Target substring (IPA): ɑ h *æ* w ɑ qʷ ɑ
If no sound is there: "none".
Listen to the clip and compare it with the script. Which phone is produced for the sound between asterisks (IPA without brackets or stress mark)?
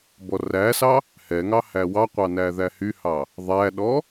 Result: æ